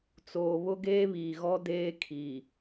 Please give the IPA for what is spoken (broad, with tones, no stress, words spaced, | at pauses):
t͡soː˨βʊ˦ ɡeː˦βiː˨ɣɔ˦ deː˦kʰi˨